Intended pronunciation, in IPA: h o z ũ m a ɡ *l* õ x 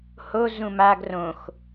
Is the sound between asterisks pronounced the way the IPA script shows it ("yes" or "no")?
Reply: no